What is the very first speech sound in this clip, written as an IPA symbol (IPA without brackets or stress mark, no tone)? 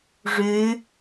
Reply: ʐ